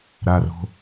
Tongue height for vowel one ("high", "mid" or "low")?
low